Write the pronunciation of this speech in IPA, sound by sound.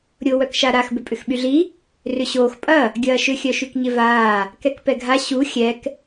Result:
ɾʲ ʊ w œ k ʃ a ɾ a x b ʏ pʼ ʏ x ɓ y ɮ i | r ʏ ɕ oː x pʼ ɐ | ɡʲ ɐː ʃ ʏ xʲ œ ʃ y k ɲ ɪ v aː | k ɛ k p ɛ ɡʱ a ɕ u xʲ ɛ k

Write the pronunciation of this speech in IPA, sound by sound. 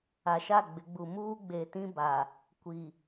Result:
a˨ ʃ a˦˨ ɡ͡b ɪ˨˦ ɡ͡b u˨ m uː˦ ɡ͡b e˨ t ĩ˦ b a˨ | kʷ i˨

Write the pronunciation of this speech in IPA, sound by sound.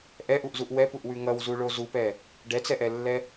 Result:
ʔ ɛ ʔ u ʔ z u ʔ w ɛ p u ʔ w ʉ ŋ ʌ w z u ɭ o z u p ɛ | ɖ ɛ t͡s ɛ ʔ ɛ lː ɛ

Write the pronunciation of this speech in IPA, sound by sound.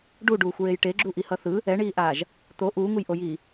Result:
ɖ u ɖ uː xʷ ɹ e j ʈ e ɡ͡ǁ u ʔ i h ʌ θ ɯ | ɛ ɳ iː ʔ aː ʒ | t̪ o ʔ uː ŋ u j ʔ o j iː

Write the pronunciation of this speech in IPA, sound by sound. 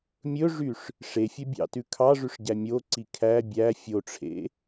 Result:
mʲ ɵ ʐ y ʂ | ʂ e fʲ œ bʲ ɑ̰ t ʉ kʰ ɑ ʐ ʉ ʂ ɟ æ mʲ o ǀ i kʰ æ bʲ æ fʲ o ʈ͡ʂʰ ḛ

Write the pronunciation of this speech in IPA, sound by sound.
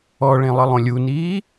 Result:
ɔ ɭ ẽ lˠ ə lˠ õ lʲ u n iː

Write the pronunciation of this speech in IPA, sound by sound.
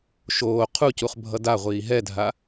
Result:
ʃ oː qʰ u c u χ bʱ ʌ d a ʁʷ iː ɦ ɛ dʱ a

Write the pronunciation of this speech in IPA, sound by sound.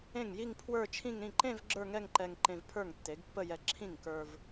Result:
ẽ˥˩ ŋ j i˥˧ ŋ pʰ w ə˞˥˧ t͡ʃʰ ĩ˥˧ ŋ ɾ ĩ˥˩ ǃ ẽ˥˧ v ɡ͡ǁ ə˞˥˧ ŋ ɛ˥˧ ŋ ǃ ɛ˧ ŋ ǃ ẽ˧ v pʰ ə˞˥˩ ŋ tː e˩˥ ɡ pː ə˥˧ j ɛ˧ ǁʰ ĩ˥˩ ŋ k ə˞˧ v

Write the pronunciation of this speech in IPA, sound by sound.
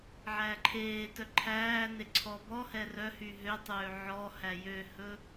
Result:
ʕ æː ǃʰ eː t œ ǃʰ æː n e ǀʰ ɔ b ɔ h ɛ r œ h y ɦ ø tˤ øː ʕ ɔ h æ j ø h ɵ

